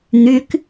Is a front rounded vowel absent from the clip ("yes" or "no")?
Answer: no